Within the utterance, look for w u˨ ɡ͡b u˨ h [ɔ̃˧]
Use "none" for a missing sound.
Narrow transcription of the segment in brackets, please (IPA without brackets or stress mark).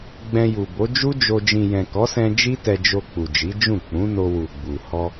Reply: ɔ˧